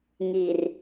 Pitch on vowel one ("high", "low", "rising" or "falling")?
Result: low